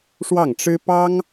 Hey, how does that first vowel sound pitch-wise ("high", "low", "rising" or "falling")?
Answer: falling